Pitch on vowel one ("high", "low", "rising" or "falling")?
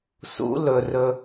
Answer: rising